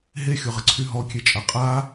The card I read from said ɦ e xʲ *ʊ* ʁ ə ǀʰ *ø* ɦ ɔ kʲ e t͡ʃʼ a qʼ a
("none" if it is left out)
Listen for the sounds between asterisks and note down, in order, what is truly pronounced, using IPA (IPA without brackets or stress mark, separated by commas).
ʊ, y